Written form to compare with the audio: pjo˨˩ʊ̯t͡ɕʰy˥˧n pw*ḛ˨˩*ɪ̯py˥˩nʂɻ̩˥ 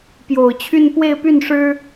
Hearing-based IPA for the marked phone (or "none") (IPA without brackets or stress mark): e˥˧